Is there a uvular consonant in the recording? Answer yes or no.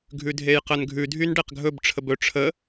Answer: yes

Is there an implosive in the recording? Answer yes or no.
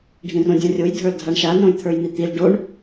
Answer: no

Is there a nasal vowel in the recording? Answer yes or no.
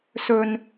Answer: no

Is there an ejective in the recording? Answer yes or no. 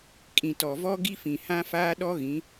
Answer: yes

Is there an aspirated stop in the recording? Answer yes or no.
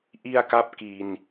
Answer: no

